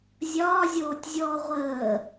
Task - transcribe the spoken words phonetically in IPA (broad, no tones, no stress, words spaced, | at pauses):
zʲɒːzʲoːtʲzʲɔː ʁʷəː